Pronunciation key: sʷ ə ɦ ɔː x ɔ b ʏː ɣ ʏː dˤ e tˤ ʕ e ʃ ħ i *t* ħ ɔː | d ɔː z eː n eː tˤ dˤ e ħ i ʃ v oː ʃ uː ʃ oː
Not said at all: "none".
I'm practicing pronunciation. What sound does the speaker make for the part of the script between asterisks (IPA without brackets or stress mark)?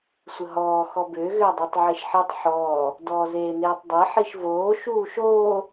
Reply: tˤ